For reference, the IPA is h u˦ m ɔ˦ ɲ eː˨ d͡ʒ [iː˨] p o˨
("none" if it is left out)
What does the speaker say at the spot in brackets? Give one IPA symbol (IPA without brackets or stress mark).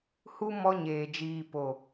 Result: iː˨